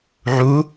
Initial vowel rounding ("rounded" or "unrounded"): rounded